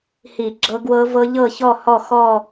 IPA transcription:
hi˧˩˧ɡ͡ǁɤ˧˥ɡwɤ˧˥vɤ˧˥ ʎɤ˥˨çɔ˥˨hɔ˥˨ xɔ˥˨

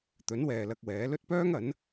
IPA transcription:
t̪ɵ˨˥nwɛː˨ lɐ˧k̚wɛː˨˥lɵ˥t̚ pœː˥ŋɐ˨˥n

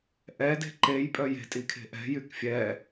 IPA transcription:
ʔɛ de̤ǃejpʼœ je̤tʼikʰe̤ ʔɛ̤ jykfʲɛ

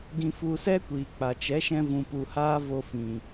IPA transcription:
ɡĩ˧fu˧sɛ˦kʷiː˨ k͡pa˨t͡ʃɛ˨˦ʃɛ̃˧ vũ˨pu˨ haː˦vo˧fĩ˨

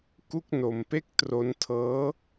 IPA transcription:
ku˥˩k̚no˧mpe˥˩k̚ tro˦˥ntʰɤː˦˥

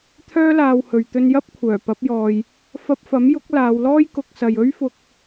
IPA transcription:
t̪ʰœː˥laː˧whɵ˨ɥ t̪ɵ˧njɐ˥p̚kʷʰœː˨˩pɐ˨˥p̚ jɔː˨j | fɐ˧p̚fɐ˨˥mjʊ˨˥k̚ laː˨˧wlɔː˥jkʊ˨˥k̚sɐ˨j ɵ˥ɥfʊ˧k̚

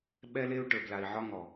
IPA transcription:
ɓɛ˦le˦u̯ ʈə˞˨bla˨i̯ʕɒ˦ŋɔ˨

